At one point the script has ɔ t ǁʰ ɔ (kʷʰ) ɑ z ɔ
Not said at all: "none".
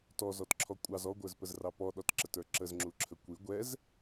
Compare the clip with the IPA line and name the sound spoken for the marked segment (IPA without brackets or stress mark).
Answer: kʷʼ